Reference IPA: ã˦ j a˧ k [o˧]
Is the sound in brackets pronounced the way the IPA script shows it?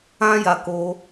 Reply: yes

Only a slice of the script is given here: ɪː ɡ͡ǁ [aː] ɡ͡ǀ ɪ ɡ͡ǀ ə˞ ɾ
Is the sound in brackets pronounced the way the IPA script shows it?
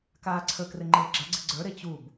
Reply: no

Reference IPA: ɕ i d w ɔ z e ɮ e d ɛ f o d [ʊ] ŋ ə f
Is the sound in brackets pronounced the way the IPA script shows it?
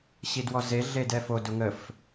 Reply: yes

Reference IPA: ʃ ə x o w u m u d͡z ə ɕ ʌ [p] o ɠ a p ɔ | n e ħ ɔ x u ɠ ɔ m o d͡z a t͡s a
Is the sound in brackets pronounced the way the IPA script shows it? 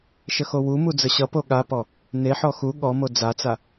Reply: yes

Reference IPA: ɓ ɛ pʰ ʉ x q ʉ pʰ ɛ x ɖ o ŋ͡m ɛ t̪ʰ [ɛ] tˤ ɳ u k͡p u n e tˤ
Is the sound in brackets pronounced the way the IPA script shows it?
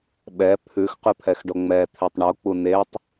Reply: no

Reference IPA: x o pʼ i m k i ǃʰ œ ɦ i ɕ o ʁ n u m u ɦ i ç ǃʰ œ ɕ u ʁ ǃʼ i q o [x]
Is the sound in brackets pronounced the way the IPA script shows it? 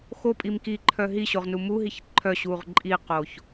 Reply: no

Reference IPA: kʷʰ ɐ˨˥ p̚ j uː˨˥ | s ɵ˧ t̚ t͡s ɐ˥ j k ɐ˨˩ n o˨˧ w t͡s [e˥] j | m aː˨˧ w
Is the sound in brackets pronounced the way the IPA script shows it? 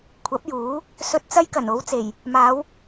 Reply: no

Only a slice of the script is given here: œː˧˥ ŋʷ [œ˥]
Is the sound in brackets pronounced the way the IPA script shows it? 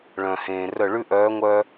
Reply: yes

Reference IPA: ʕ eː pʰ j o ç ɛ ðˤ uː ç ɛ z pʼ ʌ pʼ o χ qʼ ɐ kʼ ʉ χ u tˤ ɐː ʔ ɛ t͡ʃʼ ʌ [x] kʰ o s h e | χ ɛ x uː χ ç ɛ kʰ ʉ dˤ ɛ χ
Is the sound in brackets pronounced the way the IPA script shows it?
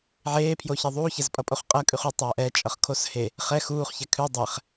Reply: no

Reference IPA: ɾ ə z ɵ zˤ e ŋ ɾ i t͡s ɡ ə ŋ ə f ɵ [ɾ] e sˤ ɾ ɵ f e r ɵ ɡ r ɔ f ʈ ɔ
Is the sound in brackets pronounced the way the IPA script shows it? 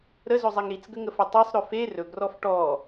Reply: no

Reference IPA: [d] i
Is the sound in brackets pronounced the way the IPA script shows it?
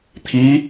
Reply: no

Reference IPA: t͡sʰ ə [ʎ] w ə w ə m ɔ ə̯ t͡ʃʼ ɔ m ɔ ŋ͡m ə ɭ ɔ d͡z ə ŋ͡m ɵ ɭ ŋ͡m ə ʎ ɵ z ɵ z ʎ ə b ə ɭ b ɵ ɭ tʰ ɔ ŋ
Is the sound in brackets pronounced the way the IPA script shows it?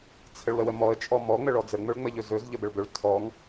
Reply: no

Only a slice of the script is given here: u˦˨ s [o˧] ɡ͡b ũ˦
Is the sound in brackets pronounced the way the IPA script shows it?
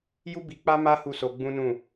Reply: yes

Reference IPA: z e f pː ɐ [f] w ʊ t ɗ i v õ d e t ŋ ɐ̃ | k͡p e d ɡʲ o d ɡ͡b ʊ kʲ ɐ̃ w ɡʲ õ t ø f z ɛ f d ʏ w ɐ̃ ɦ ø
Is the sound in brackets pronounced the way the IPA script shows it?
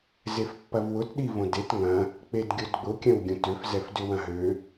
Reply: no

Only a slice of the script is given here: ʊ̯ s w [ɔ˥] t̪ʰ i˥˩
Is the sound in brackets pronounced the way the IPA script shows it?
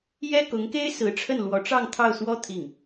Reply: yes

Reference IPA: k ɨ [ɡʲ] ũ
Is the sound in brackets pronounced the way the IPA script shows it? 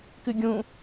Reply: yes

